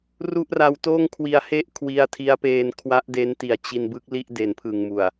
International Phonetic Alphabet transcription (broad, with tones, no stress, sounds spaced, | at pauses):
r u˥˩ ʔ r a˧ w t oː˥˩ ŋ kʰ w i˧ a̯ h e˥˩ ʔ kʰ w i˧ a̯ tʰ i˦˥ a̯ p eː˧ n kʰ w a˦˥ ʔ d e˦˥ n t i˨˩ a̯ t͡ɕ i˧ n b ɯ˦˥ k̚ l i˥˩ ʔ d e˩˦ n pʰ ɯ˨˩ ŋ m u˨˩ a̯